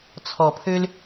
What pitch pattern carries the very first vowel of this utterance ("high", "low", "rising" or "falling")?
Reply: low